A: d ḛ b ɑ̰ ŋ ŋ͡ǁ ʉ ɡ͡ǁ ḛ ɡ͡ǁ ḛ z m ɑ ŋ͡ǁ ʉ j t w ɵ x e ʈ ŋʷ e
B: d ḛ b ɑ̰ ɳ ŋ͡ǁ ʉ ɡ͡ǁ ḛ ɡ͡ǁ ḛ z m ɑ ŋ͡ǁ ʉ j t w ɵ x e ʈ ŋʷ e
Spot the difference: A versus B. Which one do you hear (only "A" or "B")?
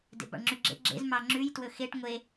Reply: B